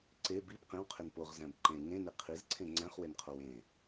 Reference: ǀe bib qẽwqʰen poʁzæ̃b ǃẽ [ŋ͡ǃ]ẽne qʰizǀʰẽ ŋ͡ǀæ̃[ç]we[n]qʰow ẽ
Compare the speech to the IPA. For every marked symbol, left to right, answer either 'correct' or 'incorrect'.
incorrect, incorrect, correct

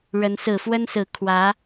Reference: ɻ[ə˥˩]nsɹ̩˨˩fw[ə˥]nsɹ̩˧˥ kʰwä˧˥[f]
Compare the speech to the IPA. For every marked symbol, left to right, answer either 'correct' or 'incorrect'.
incorrect, correct, incorrect

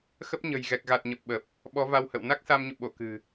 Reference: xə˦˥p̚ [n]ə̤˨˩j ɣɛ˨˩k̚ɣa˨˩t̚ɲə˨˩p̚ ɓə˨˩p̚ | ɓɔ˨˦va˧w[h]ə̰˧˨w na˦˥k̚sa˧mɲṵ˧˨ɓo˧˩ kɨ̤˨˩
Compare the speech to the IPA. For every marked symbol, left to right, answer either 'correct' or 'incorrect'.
incorrect, correct

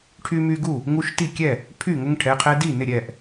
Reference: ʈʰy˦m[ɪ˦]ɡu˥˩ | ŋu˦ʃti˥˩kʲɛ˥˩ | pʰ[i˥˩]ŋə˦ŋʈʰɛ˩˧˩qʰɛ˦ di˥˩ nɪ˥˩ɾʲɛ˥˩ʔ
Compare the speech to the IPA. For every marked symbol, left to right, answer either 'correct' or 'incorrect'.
incorrect, incorrect

